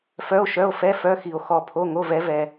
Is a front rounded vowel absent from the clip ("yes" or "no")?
no